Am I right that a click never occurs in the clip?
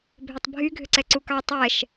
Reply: no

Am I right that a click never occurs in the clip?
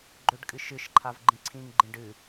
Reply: no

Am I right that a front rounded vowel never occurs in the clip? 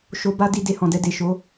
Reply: yes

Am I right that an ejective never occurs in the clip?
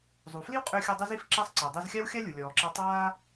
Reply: no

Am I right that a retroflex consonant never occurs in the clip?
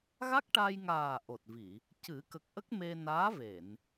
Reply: no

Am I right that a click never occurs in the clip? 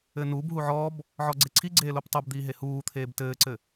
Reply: no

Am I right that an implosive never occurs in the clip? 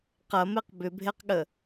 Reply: no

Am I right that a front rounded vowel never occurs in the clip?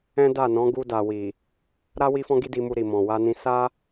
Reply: yes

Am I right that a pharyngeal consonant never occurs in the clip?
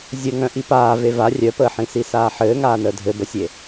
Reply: no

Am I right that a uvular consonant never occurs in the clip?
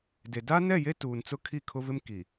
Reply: yes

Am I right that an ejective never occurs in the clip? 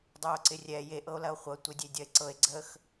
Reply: yes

